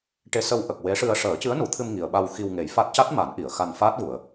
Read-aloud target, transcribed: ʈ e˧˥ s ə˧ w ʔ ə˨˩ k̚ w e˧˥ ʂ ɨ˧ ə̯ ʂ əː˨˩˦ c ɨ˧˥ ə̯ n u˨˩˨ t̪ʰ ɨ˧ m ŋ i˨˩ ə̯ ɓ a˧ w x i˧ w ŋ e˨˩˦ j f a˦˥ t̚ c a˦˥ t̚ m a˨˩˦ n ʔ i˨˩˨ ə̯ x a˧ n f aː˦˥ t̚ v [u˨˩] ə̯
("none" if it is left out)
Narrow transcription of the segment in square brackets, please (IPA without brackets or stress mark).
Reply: u˨˩˨